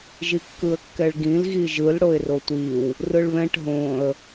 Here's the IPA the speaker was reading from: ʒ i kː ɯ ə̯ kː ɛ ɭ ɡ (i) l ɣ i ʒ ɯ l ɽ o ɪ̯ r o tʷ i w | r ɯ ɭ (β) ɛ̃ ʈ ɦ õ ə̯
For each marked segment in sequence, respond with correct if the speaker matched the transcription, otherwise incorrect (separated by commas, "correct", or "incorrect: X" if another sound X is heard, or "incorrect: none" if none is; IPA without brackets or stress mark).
incorrect: ĩ, correct